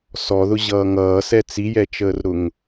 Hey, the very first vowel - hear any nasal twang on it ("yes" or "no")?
no